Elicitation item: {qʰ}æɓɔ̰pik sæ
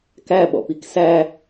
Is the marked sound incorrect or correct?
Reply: incorrect